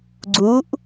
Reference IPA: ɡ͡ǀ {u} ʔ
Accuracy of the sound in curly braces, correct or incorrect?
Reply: correct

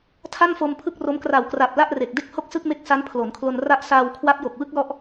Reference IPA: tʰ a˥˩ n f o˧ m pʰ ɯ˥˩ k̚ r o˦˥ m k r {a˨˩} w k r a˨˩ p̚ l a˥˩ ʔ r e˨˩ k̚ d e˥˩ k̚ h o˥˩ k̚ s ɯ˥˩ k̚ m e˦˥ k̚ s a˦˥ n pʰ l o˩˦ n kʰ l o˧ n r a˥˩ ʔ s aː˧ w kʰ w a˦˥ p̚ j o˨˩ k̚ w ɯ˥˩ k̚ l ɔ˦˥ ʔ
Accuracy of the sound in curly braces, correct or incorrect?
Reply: correct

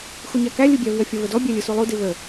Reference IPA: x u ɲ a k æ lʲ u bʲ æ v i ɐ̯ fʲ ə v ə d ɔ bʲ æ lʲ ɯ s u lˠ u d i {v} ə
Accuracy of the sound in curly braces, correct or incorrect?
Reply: correct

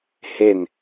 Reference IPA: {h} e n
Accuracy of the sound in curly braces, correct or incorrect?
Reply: correct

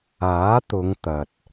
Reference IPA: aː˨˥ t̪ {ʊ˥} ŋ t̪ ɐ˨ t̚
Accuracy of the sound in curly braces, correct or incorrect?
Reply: incorrect: ʊ˨˧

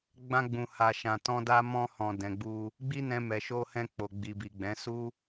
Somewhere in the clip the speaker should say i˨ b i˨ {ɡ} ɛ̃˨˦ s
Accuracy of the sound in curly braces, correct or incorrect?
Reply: incorrect: ɡ͡b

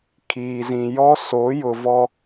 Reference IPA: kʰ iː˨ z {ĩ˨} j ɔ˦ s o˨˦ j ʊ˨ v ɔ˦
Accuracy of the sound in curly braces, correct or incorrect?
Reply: correct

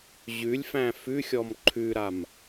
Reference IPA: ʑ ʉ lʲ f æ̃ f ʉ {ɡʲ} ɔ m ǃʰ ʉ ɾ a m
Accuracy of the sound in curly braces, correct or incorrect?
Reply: incorrect: xʲ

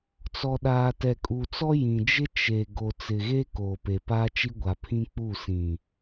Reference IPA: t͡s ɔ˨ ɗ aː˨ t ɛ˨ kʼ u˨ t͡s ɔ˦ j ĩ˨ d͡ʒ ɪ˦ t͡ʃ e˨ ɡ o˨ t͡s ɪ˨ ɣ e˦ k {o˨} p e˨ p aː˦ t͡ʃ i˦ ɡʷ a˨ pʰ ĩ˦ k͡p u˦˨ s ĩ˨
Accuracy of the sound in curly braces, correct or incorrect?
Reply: incorrect: oː˨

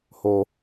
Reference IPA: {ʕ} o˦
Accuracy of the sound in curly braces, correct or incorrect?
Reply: incorrect: h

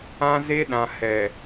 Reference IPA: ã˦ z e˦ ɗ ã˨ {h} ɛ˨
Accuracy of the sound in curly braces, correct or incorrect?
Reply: correct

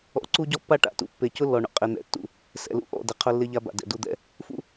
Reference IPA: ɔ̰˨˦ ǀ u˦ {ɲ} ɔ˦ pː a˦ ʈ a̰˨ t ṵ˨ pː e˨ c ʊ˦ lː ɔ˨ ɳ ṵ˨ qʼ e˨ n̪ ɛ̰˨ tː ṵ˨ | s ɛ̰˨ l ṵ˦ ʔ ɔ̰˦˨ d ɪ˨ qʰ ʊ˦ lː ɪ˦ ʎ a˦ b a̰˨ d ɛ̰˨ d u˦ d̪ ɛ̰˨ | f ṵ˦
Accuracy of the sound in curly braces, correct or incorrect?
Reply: incorrect: ɟ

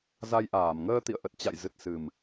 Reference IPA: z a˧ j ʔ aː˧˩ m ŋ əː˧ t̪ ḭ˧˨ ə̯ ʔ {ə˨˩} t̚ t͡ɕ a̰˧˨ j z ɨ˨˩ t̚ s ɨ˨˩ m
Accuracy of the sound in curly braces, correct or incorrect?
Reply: correct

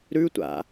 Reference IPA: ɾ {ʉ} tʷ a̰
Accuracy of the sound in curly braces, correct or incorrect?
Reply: correct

